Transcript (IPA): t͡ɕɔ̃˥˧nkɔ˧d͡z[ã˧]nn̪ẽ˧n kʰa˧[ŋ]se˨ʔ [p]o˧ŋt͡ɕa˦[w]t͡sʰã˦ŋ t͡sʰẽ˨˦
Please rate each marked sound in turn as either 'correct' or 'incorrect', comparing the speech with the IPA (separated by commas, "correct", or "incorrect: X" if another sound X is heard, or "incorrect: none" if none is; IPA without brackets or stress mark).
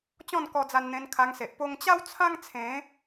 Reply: incorrect: a˧, correct, correct, correct